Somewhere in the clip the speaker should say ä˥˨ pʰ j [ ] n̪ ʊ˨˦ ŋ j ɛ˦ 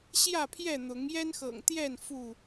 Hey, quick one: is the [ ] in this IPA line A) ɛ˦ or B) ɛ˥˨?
B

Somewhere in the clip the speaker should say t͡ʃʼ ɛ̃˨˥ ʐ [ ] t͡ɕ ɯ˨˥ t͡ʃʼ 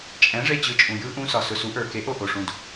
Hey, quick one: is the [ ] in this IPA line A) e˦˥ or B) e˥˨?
B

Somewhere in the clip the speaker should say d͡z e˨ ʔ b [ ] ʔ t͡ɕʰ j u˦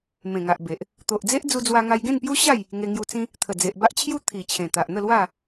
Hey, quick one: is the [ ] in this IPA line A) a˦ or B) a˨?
A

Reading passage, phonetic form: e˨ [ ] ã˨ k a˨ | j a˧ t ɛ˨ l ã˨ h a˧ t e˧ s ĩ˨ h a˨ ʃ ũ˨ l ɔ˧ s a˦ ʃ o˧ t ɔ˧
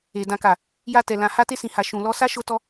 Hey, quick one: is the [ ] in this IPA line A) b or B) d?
B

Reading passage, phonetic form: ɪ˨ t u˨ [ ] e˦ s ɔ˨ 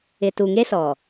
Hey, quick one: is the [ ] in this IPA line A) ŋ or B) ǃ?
A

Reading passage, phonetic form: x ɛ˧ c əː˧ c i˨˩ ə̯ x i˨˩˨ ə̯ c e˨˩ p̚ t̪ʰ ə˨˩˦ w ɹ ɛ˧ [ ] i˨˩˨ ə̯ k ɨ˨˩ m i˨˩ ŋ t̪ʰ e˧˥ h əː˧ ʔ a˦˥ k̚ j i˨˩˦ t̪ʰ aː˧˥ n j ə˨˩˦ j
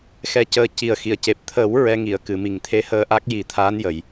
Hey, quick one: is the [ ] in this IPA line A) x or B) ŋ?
B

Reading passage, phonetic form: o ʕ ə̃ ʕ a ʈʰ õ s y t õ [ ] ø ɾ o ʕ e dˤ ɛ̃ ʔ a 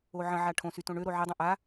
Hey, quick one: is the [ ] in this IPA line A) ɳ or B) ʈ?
A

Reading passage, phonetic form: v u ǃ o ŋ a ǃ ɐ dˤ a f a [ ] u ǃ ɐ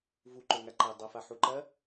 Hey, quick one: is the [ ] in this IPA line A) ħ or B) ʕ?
A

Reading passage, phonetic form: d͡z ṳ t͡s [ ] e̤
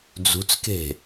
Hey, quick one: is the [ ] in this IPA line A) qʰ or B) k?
B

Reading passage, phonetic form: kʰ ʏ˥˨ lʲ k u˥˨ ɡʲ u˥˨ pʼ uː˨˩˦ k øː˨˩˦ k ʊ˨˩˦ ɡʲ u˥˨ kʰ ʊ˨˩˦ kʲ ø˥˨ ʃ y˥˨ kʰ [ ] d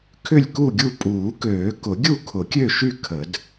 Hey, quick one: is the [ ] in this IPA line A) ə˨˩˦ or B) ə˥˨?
A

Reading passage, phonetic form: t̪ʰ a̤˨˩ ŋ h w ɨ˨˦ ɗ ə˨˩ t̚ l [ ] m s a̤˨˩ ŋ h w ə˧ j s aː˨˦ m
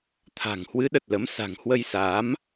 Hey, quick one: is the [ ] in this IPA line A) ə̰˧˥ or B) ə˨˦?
B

